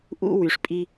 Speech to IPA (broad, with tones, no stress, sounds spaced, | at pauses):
ʔ ṵ˦ w y˨ ʂ pʼ i˦